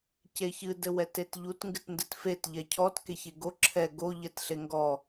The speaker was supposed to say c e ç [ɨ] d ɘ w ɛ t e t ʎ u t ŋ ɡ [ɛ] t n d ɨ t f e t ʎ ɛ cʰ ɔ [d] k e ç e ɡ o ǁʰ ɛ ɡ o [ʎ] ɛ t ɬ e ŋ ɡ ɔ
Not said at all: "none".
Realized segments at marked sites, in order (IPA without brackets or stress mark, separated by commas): ɨ, ɨ, t, ʎ